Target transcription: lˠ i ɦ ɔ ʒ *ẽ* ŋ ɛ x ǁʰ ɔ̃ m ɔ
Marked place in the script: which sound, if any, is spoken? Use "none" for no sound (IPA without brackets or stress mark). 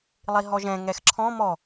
ɛ̃